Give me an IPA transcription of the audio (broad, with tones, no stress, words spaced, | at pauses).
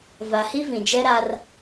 va˨hi˦ vĩ˨d͡ʒɛ˦ɾa˦r